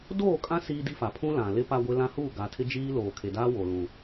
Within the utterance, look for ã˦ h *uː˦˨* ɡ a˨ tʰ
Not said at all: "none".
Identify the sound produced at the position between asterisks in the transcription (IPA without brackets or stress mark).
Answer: uː˦˨